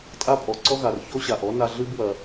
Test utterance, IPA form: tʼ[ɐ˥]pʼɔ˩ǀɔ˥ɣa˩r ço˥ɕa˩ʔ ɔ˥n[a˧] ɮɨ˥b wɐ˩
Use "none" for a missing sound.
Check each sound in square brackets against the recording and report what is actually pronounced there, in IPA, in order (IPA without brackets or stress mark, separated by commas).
a˥, a˧